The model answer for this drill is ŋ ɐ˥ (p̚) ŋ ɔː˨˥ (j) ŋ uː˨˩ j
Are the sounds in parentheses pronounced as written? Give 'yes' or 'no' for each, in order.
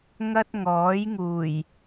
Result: no, yes

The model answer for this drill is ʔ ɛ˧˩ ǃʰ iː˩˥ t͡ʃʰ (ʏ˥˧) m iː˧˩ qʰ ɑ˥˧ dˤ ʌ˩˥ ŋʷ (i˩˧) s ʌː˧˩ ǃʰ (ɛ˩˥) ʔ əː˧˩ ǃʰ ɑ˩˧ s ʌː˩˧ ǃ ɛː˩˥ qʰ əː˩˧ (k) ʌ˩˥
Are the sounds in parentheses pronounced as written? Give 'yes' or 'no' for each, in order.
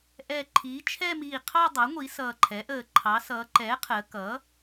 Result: no, yes, yes, yes

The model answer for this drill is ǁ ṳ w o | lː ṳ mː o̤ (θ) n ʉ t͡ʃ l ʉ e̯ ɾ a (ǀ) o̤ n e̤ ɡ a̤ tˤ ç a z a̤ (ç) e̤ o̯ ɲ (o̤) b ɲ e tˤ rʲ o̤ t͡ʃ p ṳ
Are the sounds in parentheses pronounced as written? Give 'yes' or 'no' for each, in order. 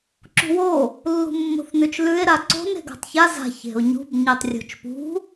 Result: yes, yes, yes, no

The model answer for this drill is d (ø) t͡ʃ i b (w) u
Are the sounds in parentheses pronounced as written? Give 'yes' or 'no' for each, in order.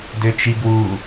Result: yes, yes

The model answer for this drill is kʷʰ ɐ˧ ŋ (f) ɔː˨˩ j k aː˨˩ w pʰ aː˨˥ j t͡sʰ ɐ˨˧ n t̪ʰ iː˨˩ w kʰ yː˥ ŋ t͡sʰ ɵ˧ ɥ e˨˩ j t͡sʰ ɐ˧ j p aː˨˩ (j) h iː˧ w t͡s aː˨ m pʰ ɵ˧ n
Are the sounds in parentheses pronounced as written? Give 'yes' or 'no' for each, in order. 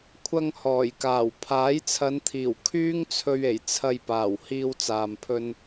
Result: no, no

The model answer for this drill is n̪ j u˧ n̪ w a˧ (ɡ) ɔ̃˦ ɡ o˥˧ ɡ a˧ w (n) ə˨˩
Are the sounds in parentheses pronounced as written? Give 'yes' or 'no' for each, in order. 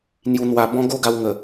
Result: no, no

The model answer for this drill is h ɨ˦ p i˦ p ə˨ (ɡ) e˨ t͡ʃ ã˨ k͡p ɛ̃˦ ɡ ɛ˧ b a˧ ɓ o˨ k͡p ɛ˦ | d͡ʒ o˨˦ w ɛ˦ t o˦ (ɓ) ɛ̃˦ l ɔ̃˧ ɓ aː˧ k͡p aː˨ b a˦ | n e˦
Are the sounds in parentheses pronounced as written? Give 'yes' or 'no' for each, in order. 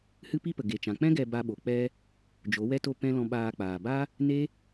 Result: yes, no

